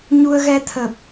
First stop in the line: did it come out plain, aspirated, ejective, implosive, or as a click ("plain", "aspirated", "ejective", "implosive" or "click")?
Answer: aspirated